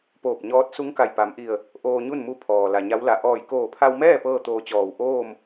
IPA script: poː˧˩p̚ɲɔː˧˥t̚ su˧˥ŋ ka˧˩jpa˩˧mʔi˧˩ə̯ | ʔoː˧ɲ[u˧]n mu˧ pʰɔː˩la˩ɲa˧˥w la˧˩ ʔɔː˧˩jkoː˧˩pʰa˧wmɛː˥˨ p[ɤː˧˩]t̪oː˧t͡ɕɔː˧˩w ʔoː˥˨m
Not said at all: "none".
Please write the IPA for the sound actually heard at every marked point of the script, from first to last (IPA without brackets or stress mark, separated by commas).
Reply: u˥˨, ɤː˥˨